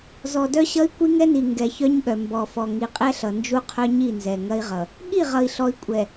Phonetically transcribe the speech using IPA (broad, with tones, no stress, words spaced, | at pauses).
zɔ˨dœ˦ɕʌ˦i̯ kʷi˦ŋɛ˦ni˨ ŋɡɛ˨çœ˦ɲɠœ˨ mbɔ˨fɔ˨ ŋi˨qʼɛ˦ɬʌ˨ nd͡ʒu˦qʰœ˦ɲi˦˨nzɛ˨ ŋɐ˦i̯ʁʌ˨ | ɠi˦˨ʁʌ˨i̯ɬɔ˨i̯ kʷʼɛ˨